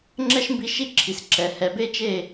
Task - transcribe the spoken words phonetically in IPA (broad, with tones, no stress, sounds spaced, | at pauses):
ŋ͡ǁ ɛ˦ ʃ m b i˧ ʃ i˦ ǁʰ i˨ s ǁ ɛ˨ h ɛ˨ b e˦ t͡ʃ e˦˨